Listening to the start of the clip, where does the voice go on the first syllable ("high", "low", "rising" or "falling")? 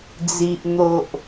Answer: low